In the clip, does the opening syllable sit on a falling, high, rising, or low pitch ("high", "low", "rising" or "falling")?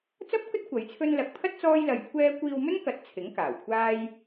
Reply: high